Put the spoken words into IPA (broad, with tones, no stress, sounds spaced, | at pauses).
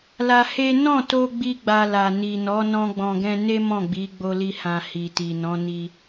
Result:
l a˧ h e˦ n ɔ̃˦˨ t o˧ ɡ͡b i˦ ɡ͡b a˧ l a˨ n i˨ n ɔ˨˦ n ɔ̃˧ ɡ͡b ɔ̃˨ ɡ ɛ̃˧ n e˦ m ɔ̃˦˨ ɡ͡b i˨˦ ɡ͡b o˧ l i˧ h ã˨ h i˨ t i˨ n ɔ̃˨˦ n i˧